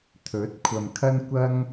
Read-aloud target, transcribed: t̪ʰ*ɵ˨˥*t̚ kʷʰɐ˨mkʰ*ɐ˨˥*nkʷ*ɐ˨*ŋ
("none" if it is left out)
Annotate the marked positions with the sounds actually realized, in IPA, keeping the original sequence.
ɵ˨˥, ɐ˥, ɐ˥

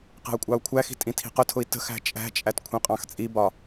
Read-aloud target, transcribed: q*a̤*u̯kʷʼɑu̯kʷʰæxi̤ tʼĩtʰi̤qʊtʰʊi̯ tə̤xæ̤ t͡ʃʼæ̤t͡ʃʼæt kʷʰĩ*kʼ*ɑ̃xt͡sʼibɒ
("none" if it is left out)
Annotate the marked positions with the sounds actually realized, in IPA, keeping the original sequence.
æ̤, qʼ

